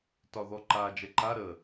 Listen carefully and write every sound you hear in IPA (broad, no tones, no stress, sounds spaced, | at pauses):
t ɒ ð ɔ ǃ a d͡ʒ ɛ ǃ a ɾ ə